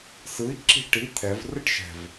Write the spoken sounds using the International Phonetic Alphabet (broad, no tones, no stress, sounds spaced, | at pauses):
s ɯ i̯ ǁ i̤ ʈ i t̪ʰ ɛ v r ɯ ʈ ʃ ɛ̤ v